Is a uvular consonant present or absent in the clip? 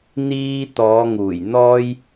absent